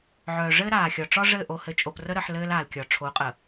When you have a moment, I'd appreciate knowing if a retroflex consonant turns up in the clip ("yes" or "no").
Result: yes